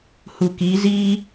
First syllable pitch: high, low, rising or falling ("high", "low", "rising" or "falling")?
low